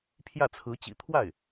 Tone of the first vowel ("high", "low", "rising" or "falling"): falling